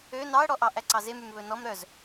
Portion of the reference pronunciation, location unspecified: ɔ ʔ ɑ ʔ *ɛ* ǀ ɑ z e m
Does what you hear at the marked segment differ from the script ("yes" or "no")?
yes